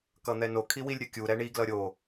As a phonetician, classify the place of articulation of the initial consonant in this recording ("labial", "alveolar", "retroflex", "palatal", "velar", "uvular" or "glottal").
velar